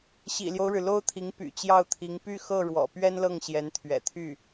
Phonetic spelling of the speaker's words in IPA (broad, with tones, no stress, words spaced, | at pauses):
ɕḭ˨˩ljo˦ʊ̯ɻɻ̩˩ lo˥ʊ̯t̪ʰi˧˥ŋ py̰˨˩ t͡ɕjɑ˥˩ʊ̯t̪ʰi˧˥ŋ py˥˧xɤ˥˩ ɻwɔ̰˨˩pɥɛ˥nlɤ˥˩ŋ ɕjɛ˧˥nt̪ʰɥɛ̰˨˩t̪ʰy˥˩